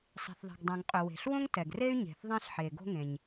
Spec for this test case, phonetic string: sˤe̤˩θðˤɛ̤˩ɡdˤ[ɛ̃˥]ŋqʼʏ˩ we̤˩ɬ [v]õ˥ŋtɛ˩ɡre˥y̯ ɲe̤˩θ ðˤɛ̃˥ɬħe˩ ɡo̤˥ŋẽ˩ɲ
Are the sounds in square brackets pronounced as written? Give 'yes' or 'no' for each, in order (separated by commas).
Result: no, no